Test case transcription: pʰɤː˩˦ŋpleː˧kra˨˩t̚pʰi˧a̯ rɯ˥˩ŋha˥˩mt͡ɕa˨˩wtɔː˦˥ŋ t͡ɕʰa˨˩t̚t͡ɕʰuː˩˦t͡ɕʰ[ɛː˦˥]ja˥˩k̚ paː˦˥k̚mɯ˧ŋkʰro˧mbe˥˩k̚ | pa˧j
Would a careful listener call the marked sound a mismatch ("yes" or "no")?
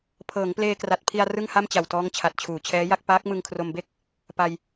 no